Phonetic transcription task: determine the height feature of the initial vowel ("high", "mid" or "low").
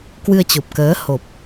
high